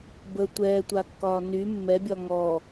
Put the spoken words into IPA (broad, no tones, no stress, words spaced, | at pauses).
bə tʷɛːtʷakːɒː ny mːɛbʲɒ ŋɔ